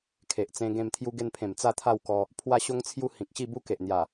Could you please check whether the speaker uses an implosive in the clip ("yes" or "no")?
no